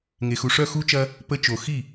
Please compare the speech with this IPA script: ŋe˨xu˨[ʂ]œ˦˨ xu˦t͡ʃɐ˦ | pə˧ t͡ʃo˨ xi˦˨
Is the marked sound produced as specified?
yes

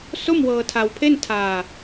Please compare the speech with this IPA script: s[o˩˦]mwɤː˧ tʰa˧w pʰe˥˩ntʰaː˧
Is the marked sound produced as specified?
no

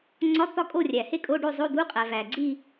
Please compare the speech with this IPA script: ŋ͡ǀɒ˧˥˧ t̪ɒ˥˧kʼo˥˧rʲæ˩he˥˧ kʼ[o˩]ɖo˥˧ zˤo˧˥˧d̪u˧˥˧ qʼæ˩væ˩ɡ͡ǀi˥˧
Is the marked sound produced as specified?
no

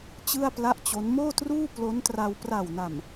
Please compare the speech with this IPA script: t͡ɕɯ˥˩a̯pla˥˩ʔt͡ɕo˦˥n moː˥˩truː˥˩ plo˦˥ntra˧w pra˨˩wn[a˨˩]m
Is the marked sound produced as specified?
yes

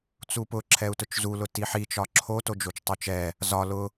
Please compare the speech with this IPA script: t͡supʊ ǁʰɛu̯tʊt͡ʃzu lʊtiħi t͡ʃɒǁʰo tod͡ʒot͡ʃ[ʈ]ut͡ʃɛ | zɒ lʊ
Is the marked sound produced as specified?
no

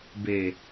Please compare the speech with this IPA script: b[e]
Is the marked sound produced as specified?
yes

